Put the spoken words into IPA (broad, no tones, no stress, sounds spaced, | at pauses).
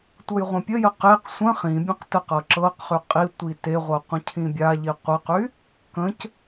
tʷ ɤ j ʁʷ ə̃ pʲ ə j ə q e q sʷ ə̃ χ ĩ bʲ ə̃ q t ə q ɤ ǁ ɤ q χ y qʼ i tʷ i t e ʁʷ ɤ qʷ ə̃ cʰ ĩ bʲ a ʎ i qʷ ə q y | k ə̃ c